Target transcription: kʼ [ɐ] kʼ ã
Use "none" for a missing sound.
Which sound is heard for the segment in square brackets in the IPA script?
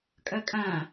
ɐ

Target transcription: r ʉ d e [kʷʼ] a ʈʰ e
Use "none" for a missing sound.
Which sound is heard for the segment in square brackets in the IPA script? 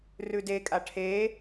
kʼ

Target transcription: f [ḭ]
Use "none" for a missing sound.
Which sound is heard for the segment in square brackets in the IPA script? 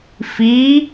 i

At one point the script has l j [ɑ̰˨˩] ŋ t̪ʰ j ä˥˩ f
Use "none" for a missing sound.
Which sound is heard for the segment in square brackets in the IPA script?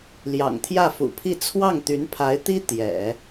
ɑ̰˨˩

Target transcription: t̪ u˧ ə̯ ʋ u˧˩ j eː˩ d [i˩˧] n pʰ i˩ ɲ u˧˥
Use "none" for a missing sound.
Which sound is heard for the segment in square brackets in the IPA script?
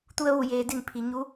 i˧˩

